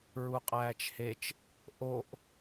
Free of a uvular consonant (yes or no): no